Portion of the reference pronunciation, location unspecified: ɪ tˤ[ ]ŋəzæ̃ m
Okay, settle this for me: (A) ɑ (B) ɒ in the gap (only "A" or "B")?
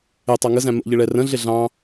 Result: A